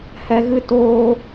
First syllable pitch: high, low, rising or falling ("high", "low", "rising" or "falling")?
low